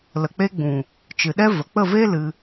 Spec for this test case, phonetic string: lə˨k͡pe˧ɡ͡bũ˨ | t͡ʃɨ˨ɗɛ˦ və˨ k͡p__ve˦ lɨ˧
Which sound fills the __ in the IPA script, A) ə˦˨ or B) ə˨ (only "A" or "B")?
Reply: A